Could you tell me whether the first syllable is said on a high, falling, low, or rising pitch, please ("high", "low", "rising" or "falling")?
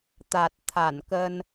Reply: low